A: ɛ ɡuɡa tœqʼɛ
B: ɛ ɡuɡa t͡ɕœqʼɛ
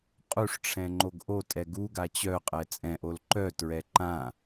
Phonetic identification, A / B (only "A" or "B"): B